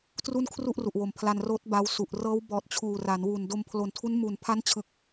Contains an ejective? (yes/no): no